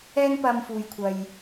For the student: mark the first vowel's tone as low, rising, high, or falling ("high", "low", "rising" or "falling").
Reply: high